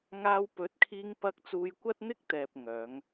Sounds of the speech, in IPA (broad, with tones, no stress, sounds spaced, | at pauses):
ŋ aː˧ w p ɵ˨˥ t̚ kʰ iː˧ ŋ p ɐ˧ k̚ t͡s uː˧ j kʷ ɐ˥ t̚ n̪ ɪ˥ k̚ t̪ ɛː˨ p̚ ŋ œː˨˧ ŋ